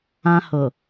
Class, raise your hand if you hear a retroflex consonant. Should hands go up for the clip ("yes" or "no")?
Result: no